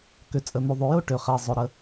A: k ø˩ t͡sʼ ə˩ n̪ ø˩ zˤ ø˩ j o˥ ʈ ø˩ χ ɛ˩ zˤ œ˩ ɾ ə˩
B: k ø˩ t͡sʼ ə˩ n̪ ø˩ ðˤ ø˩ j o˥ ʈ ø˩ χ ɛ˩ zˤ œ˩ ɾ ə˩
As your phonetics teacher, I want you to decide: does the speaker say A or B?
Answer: B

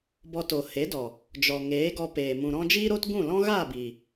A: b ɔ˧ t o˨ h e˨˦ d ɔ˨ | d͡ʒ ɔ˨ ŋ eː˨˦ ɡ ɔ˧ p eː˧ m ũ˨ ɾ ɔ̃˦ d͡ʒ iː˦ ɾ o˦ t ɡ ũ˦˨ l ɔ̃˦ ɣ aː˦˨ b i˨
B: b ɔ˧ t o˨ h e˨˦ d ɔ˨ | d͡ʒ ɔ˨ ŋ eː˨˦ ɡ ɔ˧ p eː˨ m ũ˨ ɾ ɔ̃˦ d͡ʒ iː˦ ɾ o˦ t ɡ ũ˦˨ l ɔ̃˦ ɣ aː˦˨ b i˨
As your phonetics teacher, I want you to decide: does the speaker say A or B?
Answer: B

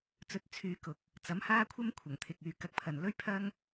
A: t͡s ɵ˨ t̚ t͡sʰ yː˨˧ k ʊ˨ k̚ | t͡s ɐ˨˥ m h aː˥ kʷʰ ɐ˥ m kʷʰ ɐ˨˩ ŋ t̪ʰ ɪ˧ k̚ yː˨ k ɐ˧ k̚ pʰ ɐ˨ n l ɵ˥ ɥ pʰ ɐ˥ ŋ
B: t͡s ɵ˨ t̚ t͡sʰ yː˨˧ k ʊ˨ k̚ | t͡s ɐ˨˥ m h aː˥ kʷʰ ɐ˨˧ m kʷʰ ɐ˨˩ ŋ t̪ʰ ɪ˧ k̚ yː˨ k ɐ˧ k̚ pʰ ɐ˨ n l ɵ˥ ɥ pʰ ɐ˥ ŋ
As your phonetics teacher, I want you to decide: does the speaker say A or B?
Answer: A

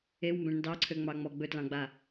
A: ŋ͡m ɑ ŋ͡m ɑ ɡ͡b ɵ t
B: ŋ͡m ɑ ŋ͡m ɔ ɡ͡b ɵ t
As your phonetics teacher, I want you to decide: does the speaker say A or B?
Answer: B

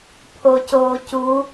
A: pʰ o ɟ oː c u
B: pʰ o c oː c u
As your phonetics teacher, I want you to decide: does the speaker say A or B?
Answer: B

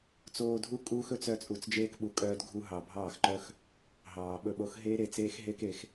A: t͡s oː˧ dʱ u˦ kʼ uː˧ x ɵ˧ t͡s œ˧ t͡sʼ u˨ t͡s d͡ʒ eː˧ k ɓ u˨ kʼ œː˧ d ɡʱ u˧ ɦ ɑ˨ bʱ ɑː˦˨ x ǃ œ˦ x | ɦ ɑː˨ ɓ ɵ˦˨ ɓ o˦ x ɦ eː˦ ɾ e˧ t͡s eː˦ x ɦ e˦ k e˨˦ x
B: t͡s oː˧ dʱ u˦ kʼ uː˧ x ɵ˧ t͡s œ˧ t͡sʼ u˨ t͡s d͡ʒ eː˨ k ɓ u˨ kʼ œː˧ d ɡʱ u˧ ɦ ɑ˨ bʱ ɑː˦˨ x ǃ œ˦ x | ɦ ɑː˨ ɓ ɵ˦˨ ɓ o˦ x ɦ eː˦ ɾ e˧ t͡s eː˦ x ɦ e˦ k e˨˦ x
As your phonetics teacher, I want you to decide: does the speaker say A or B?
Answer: A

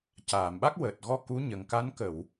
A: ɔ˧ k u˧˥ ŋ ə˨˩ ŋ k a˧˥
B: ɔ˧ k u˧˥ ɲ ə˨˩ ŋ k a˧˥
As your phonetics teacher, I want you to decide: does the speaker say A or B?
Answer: B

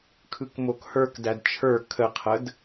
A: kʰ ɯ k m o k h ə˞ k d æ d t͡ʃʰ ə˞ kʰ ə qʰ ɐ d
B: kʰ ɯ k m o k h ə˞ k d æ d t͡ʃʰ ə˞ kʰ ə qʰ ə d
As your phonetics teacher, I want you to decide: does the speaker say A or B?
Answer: B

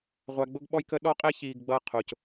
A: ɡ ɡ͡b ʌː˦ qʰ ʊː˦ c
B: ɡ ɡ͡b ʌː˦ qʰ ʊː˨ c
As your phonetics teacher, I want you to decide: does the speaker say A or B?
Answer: B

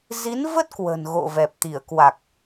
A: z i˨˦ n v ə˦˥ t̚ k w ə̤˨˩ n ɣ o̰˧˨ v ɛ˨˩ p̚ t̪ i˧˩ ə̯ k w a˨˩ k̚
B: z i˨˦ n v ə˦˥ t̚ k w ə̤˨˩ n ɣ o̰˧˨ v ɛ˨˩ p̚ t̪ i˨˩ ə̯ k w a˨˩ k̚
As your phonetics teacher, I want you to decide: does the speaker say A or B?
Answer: A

